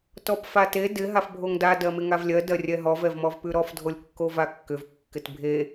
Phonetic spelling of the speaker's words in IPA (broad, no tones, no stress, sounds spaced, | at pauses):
t ɔ p f a t e d ɪ ɦ a f bʱ o ŋ d a d ɜ m ɪ ŋ a v lʲ ɜ d ɜ rʲ ɛ ɦ ɔ v ɛ v m ɔ v p ʉ ɾ ɔ f dʱ o lʲ kː o v a kː ʏ v kː ɪ t bʱ e